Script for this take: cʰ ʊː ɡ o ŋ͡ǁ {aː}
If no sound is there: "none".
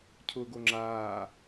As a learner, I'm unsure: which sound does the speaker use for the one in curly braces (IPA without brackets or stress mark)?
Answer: aː